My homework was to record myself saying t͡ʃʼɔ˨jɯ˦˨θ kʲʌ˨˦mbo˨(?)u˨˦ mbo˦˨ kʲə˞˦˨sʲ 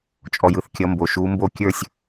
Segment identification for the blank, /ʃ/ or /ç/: ʃ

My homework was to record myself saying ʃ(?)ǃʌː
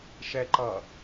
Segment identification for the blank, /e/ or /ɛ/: ɛ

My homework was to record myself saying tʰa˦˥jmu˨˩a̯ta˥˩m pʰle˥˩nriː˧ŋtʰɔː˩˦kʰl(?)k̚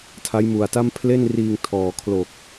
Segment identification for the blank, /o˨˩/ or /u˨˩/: o˨˩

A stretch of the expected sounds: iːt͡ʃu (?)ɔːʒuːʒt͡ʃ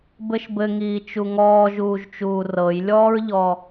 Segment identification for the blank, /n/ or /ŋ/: ŋ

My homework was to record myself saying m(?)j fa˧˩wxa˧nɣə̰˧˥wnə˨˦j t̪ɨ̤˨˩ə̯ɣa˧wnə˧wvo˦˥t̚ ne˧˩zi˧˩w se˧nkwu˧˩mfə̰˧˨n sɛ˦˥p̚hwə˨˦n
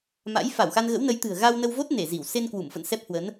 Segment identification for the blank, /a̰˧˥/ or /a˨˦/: a̰˧˥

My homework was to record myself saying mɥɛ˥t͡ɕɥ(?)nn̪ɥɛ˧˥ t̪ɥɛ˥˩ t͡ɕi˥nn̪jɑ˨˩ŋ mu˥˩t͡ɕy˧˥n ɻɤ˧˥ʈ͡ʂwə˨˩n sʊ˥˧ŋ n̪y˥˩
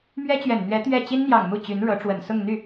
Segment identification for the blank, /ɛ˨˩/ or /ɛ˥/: ɛ˨˩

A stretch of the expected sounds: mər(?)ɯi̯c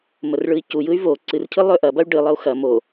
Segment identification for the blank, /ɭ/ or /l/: ɭ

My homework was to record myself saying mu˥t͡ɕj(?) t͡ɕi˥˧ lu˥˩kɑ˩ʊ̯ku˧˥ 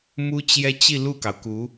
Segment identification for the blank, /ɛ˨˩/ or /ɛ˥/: ɛ˥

